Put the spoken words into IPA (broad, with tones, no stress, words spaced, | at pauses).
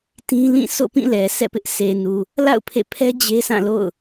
tĩ˦lĩ˦˨ so̰˦˨pĩ˦˨lɛ˨ sɛ̰˦˨pɪ˦ʔ se˨nu˨ | la̰˦˨ʊ̯ pʰḛ˦˨ pʰɛ˦ d͡ʑe˦sã˦˨lo̰˦˨ʊ̯